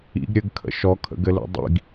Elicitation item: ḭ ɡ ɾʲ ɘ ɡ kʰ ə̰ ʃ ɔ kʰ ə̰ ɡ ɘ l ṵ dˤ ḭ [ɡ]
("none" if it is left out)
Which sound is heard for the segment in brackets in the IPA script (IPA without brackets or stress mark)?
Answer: ɡ